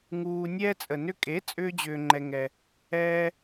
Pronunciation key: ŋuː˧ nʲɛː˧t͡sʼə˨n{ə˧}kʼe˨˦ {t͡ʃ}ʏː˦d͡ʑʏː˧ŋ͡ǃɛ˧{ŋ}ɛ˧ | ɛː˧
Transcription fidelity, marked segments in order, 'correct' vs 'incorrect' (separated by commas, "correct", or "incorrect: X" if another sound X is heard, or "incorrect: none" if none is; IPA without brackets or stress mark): incorrect: ʏ˧, incorrect: t͡sʼ, correct